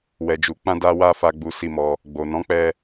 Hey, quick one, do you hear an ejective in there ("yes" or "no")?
no